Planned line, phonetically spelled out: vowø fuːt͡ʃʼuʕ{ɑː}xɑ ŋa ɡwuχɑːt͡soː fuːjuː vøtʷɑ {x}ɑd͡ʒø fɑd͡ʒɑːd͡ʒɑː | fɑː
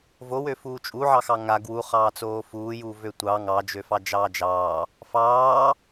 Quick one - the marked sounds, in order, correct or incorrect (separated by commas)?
incorrect, incorrect